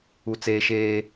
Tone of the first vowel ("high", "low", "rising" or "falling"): high